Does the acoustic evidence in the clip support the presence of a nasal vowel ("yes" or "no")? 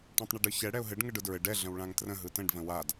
yes